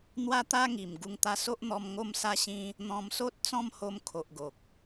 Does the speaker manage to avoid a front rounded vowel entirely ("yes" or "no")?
yes